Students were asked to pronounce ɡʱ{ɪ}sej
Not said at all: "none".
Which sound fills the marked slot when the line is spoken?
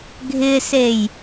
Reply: ɪ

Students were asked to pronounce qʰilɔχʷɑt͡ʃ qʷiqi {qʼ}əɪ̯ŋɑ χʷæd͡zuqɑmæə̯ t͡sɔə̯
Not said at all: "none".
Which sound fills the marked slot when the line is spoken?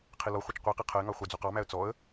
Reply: qʰ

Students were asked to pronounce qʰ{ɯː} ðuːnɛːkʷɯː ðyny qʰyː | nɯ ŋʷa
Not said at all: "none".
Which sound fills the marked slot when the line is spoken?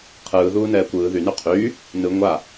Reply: ɯː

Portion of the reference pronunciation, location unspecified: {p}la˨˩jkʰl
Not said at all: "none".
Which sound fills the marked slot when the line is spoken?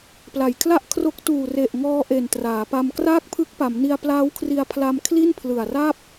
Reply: p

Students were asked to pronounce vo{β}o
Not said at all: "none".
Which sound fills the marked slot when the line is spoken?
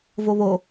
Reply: β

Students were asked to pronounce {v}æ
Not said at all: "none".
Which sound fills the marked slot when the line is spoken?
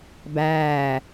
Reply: b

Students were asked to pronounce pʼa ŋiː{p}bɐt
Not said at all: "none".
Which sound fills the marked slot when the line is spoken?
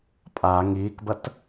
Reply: k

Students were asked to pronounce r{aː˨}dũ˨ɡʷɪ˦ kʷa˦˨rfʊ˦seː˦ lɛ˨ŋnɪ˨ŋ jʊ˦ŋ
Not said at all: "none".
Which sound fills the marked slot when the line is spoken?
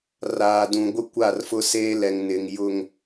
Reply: aː˨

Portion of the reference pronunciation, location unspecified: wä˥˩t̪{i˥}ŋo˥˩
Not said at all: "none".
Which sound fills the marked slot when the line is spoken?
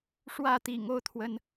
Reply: ḭ˨˩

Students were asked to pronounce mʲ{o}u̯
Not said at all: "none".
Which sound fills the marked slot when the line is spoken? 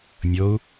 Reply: o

